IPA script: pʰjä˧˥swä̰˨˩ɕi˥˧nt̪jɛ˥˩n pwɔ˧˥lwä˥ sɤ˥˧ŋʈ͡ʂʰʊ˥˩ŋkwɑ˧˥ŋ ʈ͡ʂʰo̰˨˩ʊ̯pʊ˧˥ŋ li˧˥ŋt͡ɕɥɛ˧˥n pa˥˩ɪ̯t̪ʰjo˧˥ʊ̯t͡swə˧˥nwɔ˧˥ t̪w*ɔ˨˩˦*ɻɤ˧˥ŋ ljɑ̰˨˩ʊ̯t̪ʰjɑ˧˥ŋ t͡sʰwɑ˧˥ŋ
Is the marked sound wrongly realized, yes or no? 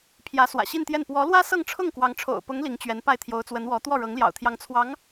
yes